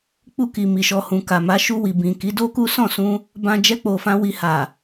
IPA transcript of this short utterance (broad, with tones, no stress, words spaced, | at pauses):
k͡pu˧ ki˨mi˨ʃɔ˨ hũ˨ka˨ma˨˦ ʃu˧wi˨ bĩ˨ki˨˦ do˦ku˦ sɔ̃˦˨sũ˧ | bã˧ d͡ʒɛ˧k͡po˨fã˧ wi˧ha˨